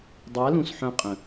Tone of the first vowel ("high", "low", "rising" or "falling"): rising